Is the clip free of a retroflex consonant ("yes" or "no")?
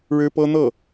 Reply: no